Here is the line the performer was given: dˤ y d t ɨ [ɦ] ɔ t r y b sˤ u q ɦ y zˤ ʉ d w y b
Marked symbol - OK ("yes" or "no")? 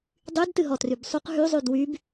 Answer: yes